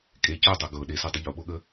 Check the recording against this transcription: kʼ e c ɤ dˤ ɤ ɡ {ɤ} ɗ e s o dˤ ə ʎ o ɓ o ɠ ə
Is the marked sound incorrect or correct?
correct